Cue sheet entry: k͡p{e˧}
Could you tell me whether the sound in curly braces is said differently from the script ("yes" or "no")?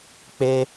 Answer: no